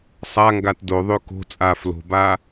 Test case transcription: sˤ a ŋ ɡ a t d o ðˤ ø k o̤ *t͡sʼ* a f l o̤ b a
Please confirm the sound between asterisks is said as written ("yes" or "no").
yes